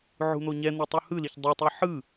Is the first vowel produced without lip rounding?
no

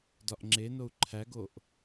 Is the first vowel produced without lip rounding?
no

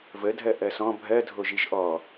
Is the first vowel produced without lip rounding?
yes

